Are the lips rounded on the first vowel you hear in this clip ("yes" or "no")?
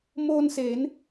yes